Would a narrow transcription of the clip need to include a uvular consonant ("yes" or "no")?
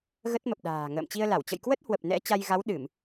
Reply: no